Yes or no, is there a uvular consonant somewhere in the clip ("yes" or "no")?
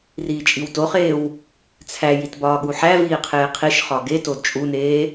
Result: yes